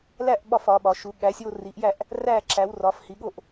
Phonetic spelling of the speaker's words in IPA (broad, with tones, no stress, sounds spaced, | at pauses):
l æ˥˧ ʔ ɓ ɒ˥˧ f ɒ˨˦ ɓ ɒ˨˦ ʃ u˨˦ ɠ æ˨˦ sʲ o˥˧ r i˨˦ ʔ j æ˥˧ ʔ | r æ˥˧ ǁ æ˨˦ w r ɒ˨˦ f h i˨˦ ɠ o˥˧ ʔ